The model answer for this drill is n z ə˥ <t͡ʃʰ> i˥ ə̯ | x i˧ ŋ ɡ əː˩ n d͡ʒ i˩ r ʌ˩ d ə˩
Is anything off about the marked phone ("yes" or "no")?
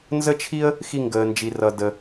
no